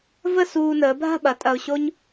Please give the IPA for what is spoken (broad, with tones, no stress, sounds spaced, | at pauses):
v ə˥˧ s uː˧ n əː˩˧ bʱ a̤˥˧ ɓ ɐ˩˧ tʼ ɐ˧ ʊ̯ ɕ o˥ ɲ